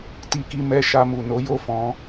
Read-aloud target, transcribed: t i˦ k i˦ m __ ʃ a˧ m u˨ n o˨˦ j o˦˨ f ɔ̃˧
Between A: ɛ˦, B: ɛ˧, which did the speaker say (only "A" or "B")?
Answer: B